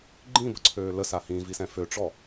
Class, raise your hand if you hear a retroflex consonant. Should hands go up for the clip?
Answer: yes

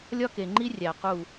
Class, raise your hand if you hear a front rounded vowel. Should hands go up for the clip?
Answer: no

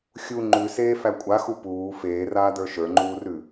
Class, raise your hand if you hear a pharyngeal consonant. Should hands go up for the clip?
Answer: no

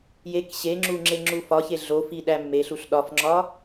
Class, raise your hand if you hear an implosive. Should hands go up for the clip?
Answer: yes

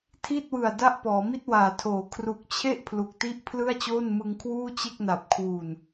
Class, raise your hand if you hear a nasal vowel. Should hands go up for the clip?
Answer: no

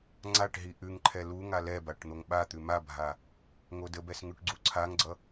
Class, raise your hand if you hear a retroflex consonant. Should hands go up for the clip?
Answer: yes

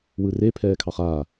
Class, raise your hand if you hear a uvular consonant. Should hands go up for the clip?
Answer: yes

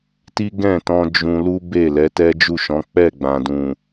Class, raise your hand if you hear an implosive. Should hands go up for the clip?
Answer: no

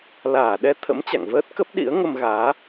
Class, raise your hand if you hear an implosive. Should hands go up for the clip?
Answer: yes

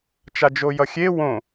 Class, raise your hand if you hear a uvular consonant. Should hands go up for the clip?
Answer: no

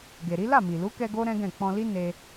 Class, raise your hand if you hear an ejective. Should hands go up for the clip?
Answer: no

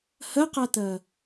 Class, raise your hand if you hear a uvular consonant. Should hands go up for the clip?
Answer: yes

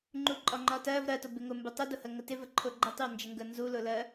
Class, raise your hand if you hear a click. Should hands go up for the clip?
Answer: yes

